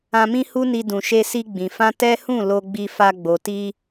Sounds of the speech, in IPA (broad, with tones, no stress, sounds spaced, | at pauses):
ã˧ m ĩ˦ h u˦ n i˧ d ũ˨ ʃ e˧ s i˧ ɡ͡b ĩ˨ f ã˧ t ɛ˦ h ũ˦˨ l o˧ ɡ͡b i˧ f a˧ ɡ͡b o˨ t i˧